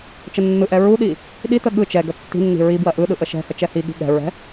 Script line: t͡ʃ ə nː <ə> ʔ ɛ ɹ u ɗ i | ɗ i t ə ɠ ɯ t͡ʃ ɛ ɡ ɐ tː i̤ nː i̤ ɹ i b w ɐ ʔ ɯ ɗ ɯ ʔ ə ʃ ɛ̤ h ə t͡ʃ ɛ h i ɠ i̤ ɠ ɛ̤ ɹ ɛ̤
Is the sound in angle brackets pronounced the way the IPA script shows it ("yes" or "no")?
no